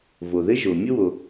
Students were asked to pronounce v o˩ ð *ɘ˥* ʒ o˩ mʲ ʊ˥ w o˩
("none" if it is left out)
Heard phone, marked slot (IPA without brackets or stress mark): ɘ˥